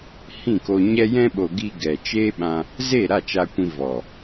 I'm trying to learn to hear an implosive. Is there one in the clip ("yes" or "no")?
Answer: yes